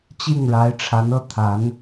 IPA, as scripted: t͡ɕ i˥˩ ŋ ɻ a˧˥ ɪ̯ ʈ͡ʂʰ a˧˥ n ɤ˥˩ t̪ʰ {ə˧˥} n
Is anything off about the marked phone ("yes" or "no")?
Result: yes